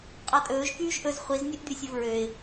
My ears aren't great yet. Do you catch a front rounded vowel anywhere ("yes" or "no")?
yes